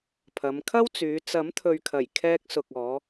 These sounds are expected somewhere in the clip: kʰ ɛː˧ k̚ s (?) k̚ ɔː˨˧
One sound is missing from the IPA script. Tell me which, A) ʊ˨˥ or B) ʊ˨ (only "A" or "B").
B